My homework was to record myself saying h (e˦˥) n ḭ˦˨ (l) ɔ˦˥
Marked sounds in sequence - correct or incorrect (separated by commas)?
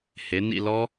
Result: incorrect, correct